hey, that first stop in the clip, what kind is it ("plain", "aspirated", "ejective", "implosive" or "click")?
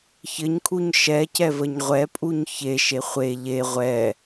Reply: aspirated